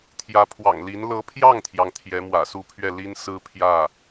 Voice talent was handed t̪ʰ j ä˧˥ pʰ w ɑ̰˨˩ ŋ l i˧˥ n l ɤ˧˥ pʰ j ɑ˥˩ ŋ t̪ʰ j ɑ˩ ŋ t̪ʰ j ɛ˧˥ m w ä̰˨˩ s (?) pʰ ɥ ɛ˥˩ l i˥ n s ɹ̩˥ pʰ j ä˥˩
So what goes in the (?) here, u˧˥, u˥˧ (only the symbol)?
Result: u˥˧